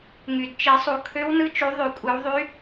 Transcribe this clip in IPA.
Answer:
ŋ y˨˩ d t͡ʃ i˨˩˦ sˤ u˨˩˦ kʰ ø˧˥ w n ɯ˧˥ t͡ʃ u˨˩˦ ðˤ y˨˩˦ kʷʼ ɯ˨˩˦ w ðˤ y˧˥

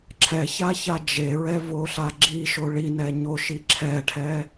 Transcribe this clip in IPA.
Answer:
ǁʰ ɛ ç a ç a d͡ʒ e ɹ ɛ v o ɬ a ɡ͡ǁ i ʃ o ɭ i n ɛ ɲ o ʃ i ǁʰ ɛ ʈʰ ɛ

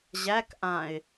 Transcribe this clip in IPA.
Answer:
ʑ æ k ʔ ã ɪ̯

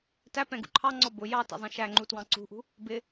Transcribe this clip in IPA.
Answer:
t æ p ɛ̃ ɡ ṵ ǃʰ ɑ ŋ͡ǀ ɔ b ʊ j ɑ t ɛ̰ zˤ ɛ̃ ʃ æ ŋ͡ǃ u t w ɑ̃ ǀ ṳ ʔ ṳ | b ɪ

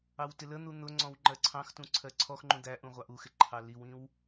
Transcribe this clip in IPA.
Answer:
ɑ w t ɪ l ə n̪ u n̪ ʊ ŋ͡ǀ ɔ̃ w ŋ͡ǃ ɜ ǀʰ ɑ̃ x t ũ ǀʰ ɜ ǀʰ ɔ x ŋ͡ǃ ũ d̪ æ ʔ ũ ʁʷ ɑ ʔ u x ɪ ǃʰ ɑ l i w ĩ w

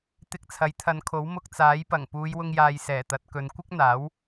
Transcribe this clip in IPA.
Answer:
t̪ ɪ˧ k̚ t͡sʰ ɐ˨˥ j t̪ʰ ɐ˨˧ n kʰ o˨˥ w m ʊ˧ k̚ t͡s aː˨˥ j p ɐ˨˩ ŋ p uː˨˧ j w ʊ˧ ŋ j aː˨ j s ɛː˨˩ t̪ ɐ˨˥ t̚ k ɵ˨˧ n kʷ ɪ˥ k̚ n̪ aː˨˥ w

